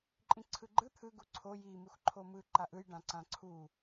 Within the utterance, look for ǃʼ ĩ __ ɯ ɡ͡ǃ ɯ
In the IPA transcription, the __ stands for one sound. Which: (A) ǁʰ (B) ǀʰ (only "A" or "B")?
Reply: B